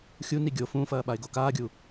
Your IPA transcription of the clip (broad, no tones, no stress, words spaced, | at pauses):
xʲu niɡʲo fũfɐː ɓaɪ̯ɡokaːɡʲu